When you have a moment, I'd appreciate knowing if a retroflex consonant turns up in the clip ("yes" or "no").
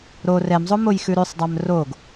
no